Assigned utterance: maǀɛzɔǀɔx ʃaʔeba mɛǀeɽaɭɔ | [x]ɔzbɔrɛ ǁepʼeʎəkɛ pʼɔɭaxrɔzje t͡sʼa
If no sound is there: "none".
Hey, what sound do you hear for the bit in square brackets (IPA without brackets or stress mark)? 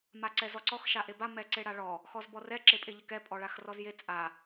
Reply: x